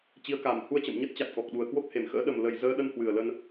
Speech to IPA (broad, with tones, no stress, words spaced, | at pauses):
t͡ɕi˨˦ə̯ka˨˩m hu˧ə̯t͡ɕə̰˧˨m ɲə˦˥t̚t͡ɕa˨˩t̚kɔ˨˩k̚ɗu˨˩ə̯ kwo˦˥k̚he˨˩mxə̰ː˧˥ ɗə˨˩mlə˨˩j zəː˧ɗə˧nhwɨ˨˩ə̯ lə˧n